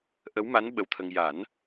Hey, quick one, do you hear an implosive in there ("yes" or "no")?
yes